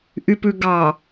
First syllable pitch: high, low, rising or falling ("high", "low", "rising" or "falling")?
low